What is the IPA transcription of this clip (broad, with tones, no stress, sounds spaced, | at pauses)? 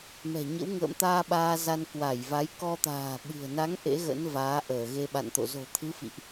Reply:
m ɛ̤˨˩ ɲ ə̰˧˥ w ŋ ə̰ː˧˨ m t̪ aː˧ ɓ aː˧ z a˧ n k w a˧˩ j v a˨˦ j k ɔ˧ t̪ a̤ː˨˩ ɓ ɨ̤˨˩ ə̯ n a˨˦ ŋ ʔ ḛ˧˥ ɣ ə̰˧˥ n v aː˨˦ ʔ əː˧˩ ɣ e˧ ɓ a̰˧˨ n t̪ o̰˧˨ z o̤˨˩ t̪ʰ ɨ˨˦ f ḭ˧˨ ʔ